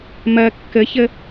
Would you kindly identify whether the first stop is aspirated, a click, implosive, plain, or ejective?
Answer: plain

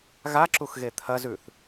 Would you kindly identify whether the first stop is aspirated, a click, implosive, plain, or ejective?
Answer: click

